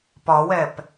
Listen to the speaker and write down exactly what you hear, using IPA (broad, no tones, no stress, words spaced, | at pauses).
pɒwɛp